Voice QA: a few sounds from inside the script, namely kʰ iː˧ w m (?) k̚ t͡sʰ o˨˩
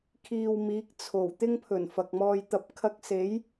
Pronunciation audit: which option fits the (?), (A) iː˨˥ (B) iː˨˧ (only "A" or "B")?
A